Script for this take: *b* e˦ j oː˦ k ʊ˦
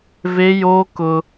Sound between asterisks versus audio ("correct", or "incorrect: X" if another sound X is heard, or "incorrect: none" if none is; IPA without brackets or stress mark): incorrect: v